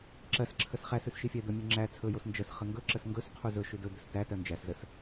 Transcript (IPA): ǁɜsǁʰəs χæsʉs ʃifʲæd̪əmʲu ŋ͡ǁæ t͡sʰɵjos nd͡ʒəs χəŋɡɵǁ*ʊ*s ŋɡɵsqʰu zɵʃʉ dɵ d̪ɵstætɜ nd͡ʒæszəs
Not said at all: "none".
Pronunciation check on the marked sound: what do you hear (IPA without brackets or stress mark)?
ə